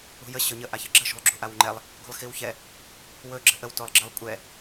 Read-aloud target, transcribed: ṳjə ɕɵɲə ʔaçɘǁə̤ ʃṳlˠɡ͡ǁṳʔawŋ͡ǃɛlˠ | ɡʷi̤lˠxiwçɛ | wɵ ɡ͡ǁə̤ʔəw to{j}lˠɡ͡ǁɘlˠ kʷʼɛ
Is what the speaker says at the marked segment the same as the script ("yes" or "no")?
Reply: no